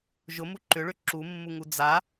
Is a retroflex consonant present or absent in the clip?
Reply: present